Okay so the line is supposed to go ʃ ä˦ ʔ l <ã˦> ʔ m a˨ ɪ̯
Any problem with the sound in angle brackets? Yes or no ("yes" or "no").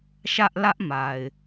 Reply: yes